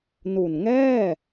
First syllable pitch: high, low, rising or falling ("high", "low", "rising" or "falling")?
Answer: low